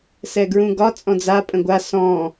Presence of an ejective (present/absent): present